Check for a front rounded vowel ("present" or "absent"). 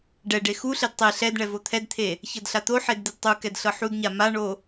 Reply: absent